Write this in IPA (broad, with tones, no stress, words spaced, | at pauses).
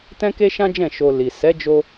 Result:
tɛ̃˦ke˦ʃã˦d͡ʒɛ̃˦˨ ʃo˨ li˨ sɛ˨˦d͡ʒo˧